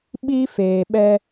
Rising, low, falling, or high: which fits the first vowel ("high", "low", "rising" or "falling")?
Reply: high